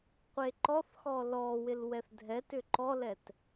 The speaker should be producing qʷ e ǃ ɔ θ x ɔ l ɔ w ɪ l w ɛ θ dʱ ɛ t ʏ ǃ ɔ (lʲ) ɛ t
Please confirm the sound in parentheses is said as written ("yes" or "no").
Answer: no